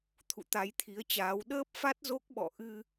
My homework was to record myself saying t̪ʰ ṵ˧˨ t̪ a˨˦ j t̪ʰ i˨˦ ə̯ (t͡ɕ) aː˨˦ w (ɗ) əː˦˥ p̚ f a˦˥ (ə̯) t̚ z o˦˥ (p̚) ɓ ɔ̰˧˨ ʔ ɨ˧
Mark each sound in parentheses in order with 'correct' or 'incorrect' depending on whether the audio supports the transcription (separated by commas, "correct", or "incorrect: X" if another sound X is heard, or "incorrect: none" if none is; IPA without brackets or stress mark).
correct, correct, incorrect: none, incorrect: k̚